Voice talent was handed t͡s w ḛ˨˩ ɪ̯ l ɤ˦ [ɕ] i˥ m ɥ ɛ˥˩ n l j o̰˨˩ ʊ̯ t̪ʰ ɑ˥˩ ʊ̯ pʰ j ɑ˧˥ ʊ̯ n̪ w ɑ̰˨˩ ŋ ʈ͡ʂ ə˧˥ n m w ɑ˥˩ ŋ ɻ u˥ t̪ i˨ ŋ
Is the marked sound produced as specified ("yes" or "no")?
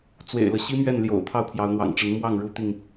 yes